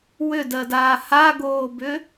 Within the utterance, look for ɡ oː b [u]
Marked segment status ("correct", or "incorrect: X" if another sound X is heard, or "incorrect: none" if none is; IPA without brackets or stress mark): incorrect: ʏ